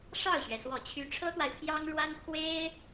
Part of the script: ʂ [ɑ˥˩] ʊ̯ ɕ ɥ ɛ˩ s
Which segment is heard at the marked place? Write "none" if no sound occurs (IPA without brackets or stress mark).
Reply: ɑ˥˩